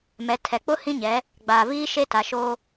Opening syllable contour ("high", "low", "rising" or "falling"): rising